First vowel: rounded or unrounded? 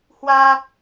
unrounded